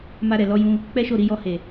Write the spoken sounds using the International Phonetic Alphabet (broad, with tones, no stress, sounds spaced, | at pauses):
m a˧ ɾ ɛ˨ l ɔ˧ j ũ˧ | k͡p ɛ˦ ʃ o˦˨ ɾ i˧ j ɔ˧ h e˨